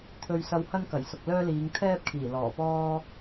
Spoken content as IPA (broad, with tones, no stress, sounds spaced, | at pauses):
t̪ʰ ɵ˧ ɥ s ɐ˧ w h ɐ˥ n k ɐ˨˩ j s ʊ˨ k̚ l œː˥ l iː˨˧ ŋ t̪ʰ ɛː˥ p̚ kʰ iː˨˩ l ɔː˨˩ p ɔː˥